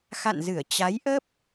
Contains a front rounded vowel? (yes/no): no